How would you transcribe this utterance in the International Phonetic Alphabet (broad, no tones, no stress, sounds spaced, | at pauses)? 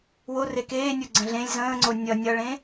w o r e k eː nʲ o ɡ͡ǀ ə̃ ɮ ẽ lʲ z ə̃ː ŋ͡ǀ o nʲ ʌ nʲ ʌ ɭ ẽ